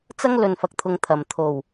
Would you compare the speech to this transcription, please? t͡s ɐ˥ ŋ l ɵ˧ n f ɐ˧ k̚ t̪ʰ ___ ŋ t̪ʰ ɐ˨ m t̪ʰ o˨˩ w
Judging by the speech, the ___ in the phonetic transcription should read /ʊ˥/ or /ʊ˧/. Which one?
ʊ˧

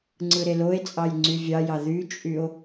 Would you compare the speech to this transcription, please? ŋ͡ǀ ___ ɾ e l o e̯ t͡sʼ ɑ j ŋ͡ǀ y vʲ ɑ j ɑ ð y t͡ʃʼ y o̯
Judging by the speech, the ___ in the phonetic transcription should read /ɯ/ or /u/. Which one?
ɯ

